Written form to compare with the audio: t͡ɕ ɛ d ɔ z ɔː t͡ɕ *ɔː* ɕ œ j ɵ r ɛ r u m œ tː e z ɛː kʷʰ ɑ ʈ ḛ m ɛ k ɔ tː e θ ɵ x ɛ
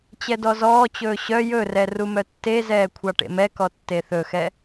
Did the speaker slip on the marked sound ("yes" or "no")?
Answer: yes